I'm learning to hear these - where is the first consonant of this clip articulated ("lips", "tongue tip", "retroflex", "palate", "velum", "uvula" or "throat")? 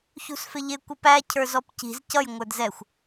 palate